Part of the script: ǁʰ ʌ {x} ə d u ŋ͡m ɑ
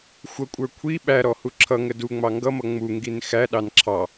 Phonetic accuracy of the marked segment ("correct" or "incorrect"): incorrect